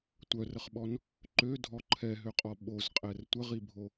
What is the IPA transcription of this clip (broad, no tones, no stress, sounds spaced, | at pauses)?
tʷ œ r ə χ ɓ ɔ n | ǃ ø dʱ ɔ ǃʰ ɛ ɦ ø qʼ ɔ ɓ o z qʼ ɛ r tʷ ə ʁ i bʱ o